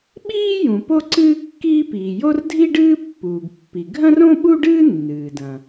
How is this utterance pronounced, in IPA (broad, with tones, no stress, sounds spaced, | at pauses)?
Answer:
ɓ iː˥ j ũ˩ p o˥ ǀ ɨː˥ kː iː˥ p iː˩ j o˥ r dʱ i˥ ɖ ɨː˥ pː uː˩ ɡ pː i˩ ɡʱ ɐ̃˥ r õ˥ ɓ u˥ ɖ ɨː˥ nː ɨː˩ d ɐ̃˩